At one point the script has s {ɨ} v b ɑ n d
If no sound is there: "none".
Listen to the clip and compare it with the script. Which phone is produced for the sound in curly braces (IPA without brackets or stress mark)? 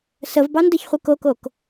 ə